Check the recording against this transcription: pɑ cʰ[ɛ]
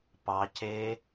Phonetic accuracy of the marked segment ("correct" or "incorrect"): incorrect